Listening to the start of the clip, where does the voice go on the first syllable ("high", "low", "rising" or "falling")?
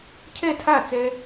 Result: falling